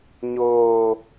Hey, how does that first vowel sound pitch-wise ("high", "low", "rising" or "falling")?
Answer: low